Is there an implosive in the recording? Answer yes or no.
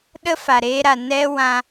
yes